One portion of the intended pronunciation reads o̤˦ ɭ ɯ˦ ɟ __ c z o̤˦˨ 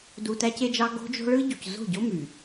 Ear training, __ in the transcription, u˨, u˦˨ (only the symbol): u˨